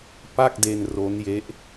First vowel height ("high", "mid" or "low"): low